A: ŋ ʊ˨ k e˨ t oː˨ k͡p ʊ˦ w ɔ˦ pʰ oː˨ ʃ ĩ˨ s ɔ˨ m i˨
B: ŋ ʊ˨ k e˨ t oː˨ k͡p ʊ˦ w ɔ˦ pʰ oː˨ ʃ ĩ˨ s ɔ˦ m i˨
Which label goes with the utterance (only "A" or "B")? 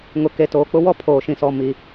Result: A